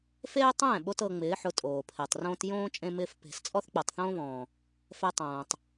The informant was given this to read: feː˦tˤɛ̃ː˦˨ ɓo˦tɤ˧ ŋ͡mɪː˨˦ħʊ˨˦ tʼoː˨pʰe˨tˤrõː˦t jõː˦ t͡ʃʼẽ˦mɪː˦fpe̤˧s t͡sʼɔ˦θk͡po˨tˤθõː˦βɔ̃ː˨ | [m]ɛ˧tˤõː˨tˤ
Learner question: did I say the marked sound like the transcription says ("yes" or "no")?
no